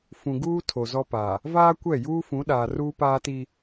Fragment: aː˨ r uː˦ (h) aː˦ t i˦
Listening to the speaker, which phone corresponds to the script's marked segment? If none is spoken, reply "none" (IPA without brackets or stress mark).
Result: p